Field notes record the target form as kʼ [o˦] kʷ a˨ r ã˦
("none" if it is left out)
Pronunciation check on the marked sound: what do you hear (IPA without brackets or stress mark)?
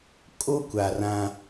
o˦